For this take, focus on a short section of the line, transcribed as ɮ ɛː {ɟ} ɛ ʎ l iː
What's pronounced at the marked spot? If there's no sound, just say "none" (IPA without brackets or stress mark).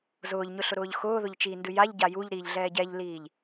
ɟ